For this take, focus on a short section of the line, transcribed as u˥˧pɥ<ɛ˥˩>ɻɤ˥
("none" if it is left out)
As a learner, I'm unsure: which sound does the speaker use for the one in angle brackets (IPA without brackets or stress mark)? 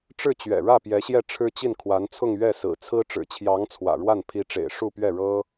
ɛ˥˩